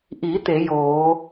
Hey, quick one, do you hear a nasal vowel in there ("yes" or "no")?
no